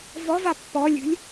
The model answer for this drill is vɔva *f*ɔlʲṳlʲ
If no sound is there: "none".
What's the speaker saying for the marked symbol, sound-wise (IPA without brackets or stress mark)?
pː